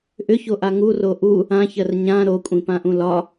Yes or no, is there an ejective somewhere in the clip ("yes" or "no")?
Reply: yes